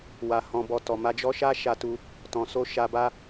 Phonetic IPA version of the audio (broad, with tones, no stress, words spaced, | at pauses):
wa˨hɔ̃˨bɔ˨ tɔ˨ma˧d͡ʒɔ˦ʃa˦ ʃa˧tu˧ | tɔ̃˨so˧ ʃa˧ba˦